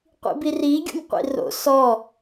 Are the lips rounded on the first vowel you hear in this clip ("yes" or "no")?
no